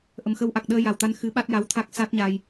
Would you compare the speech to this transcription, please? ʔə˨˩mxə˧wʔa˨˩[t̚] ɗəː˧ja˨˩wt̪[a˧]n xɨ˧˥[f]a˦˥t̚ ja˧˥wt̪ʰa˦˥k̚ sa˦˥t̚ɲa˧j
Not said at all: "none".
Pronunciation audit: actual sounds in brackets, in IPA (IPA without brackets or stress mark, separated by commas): k̚, a˧, ɓ